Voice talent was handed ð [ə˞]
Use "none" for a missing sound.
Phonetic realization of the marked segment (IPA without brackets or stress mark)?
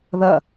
ɐ